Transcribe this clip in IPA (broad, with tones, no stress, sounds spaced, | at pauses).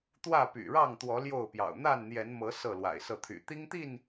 t̪ w ä˥˨ p y̰˨˩ ɻ ɑ˥˨ ŋ t̪ w ɔ˨˦ l j o˥˨ ʊ̯ p j ɑ̰˨˩ ʊ̯ n̪ a˥˨ n n̪ j ɛ˨˦ n m ɤ˨˦ s ɤ˥˨ l w a̰˨˩ ɪ̯ s ɤ˥˨ t̪ʰ y̰˨˩ t̪ i˦ ŋ t̪ i˥˨ n